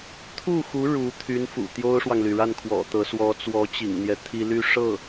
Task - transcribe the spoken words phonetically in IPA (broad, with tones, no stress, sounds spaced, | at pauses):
t̪ʰ u˥˩ x u˧˥ ɻ u˧˥ t̪ʰ y˧˥ n f ṵ˨˩ t̪ j o˥ ʊ̯ ʂ w ɑ˨ ŋ l y˩ ɻ a˥˩ n kʰ w ɔ̰˨˩ t̪ ɤ˧˥ s w ɔ˧˥ t͡s w ɔ˧˥ t͡ɕ ḭ˨˩ ŋ n̪ j ɛ˦ t̪ʰ i˥ l y˥˧ ʂ ɤ˥˩